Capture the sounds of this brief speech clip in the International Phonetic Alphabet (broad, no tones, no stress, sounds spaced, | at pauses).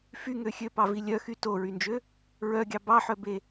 f y ŋ ø xʲ ø p ɑ v i lʲ œ x y t o ɹ y n d͡ʒ ø | ɹ œ ɡʲ ɑ b ɑ ħ œ b e